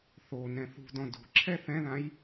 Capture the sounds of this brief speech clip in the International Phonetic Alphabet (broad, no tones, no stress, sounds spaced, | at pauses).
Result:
θ o n ɛ̃ θ ṳ d ɔ̃ d o̤ ǁʰ ɛ θ ɛ̃ ð ã j